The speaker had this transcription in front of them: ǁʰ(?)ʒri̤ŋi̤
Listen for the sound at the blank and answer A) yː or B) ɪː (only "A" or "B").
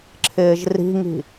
B